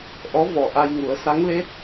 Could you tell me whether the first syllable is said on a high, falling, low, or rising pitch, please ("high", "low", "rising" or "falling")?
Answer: rising